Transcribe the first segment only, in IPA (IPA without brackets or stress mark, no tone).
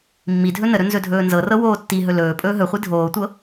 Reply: mː